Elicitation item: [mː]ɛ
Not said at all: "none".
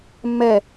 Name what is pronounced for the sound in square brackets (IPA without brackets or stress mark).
mː